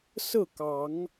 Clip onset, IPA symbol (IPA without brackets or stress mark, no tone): s